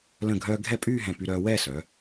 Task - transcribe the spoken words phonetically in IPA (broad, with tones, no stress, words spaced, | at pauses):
lə̃˧˩ɡʱœː˧ ɡʱɛ˥˧pʼyː˥˧ɦɛ̃˧˩ py˧ɾœː˧wɛː˥˧sœː˩˧